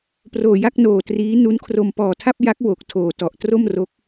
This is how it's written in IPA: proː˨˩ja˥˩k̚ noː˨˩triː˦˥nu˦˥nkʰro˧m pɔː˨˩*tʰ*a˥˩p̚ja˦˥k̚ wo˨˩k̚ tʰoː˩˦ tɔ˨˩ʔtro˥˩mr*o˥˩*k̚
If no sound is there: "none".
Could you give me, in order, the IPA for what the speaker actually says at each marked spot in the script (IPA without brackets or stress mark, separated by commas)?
tʰ, o˦˥